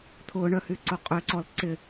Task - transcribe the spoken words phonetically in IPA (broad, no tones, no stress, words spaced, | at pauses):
t̪ʰʊɳœ hyǀoqʼøǀɔl ǀɪ